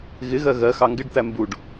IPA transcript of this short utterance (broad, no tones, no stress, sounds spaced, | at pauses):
ɣ ɪ ɣ ɜ ɣ ɜ x ɑ ŋ ɡ ɪ ɖ t̪ æ m b u ɖ